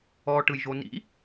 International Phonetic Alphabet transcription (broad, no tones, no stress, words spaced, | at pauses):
ɔ ʈɯjʒonḭ